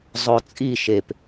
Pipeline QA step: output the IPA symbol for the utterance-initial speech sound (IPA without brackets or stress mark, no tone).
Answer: zˤ